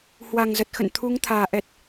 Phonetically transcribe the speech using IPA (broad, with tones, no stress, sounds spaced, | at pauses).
h w a˨˩ ŋ z ə˨˩ t̚ x ə̰˧˨ n t̪ʰ u˨˦ ŋ t̪ʰ aː˨˩ ʔ ɛ˨˩ t̚